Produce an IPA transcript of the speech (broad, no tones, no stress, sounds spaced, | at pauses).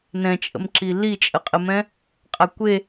n ɛ̃ t͡ʃʼ ə̰ m ǁ i l i t͡ʃʼ ə qʼ ə m ɛ̃ | qʼ a kʷ e